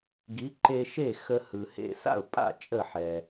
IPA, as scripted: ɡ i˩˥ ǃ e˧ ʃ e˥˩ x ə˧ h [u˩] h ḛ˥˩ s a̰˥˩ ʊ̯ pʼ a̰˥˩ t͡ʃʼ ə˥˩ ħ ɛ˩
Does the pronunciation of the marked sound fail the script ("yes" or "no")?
yes